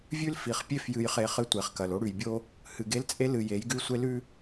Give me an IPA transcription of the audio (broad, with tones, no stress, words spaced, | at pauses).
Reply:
vʲʉ˦lfi˨χpʲe˦f jɨ˨jχe˨ χɨ˦tʷe˨χkɐ˨lo˦ ɽʉ˨jbʲo˦ | hɨ˨ɡe˦lt͡sʼe˦ lɨ˨ je˨˦jɡʉ˦ sʷe˦lʉ˦